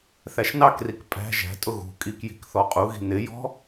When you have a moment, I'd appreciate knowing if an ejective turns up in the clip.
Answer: yes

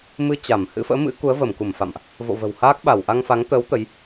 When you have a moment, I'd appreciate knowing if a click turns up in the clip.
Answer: no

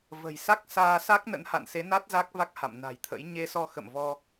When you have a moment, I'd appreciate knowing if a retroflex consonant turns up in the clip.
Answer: no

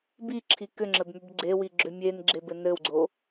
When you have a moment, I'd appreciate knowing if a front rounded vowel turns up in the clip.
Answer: yes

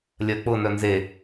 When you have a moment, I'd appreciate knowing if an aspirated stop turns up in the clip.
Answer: no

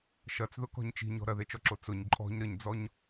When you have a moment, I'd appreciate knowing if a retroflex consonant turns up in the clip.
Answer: no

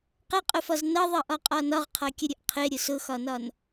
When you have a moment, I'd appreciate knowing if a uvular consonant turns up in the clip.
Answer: yes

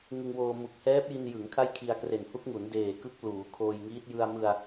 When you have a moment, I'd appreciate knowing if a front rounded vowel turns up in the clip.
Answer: no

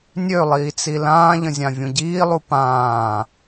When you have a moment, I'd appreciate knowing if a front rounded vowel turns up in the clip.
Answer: yes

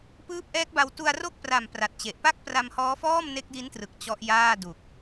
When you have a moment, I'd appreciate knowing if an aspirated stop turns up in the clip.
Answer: no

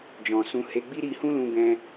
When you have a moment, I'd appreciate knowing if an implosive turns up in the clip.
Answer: no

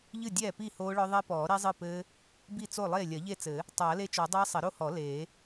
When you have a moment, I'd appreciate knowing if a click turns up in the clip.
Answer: no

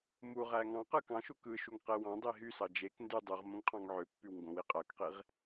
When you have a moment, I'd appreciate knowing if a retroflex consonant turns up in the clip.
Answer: no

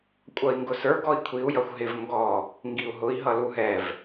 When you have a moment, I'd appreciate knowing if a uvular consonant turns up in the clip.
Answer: no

